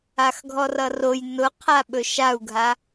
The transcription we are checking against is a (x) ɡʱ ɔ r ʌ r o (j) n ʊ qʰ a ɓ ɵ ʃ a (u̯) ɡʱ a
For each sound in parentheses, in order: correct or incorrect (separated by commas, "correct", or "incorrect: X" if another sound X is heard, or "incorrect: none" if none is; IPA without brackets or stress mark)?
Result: correct, correct, correct